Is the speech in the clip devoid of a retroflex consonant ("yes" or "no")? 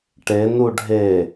no